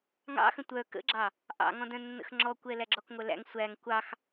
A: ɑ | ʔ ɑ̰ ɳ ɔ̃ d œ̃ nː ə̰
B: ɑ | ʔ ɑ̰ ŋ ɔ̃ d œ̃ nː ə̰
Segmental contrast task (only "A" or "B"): B